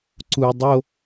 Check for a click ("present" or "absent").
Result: present